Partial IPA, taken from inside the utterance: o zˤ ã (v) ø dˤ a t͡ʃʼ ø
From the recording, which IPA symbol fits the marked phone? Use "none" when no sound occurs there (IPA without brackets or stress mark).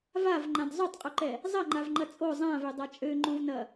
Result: v